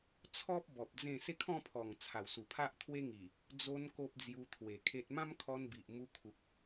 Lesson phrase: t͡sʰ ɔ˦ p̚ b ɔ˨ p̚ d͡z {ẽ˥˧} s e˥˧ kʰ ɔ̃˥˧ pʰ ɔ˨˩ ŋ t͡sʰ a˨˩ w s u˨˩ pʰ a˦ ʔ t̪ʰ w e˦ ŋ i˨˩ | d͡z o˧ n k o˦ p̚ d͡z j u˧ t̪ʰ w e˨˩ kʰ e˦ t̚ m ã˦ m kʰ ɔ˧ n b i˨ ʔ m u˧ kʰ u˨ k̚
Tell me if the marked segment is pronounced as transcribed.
yes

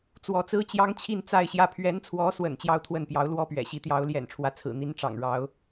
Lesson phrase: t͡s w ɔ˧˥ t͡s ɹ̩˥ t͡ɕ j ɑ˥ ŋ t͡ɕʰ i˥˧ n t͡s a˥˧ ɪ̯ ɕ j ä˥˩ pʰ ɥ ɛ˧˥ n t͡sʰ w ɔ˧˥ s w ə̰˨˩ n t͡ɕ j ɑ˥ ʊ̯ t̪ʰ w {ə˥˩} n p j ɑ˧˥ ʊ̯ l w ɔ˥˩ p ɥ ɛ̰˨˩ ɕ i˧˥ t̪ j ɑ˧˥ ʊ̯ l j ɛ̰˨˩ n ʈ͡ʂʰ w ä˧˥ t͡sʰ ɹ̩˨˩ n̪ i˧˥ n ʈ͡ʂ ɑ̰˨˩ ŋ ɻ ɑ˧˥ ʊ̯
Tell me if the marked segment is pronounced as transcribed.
yes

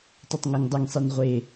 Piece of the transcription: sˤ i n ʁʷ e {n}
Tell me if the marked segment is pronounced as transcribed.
no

